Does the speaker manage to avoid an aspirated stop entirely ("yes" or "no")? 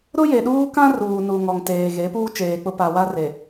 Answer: yes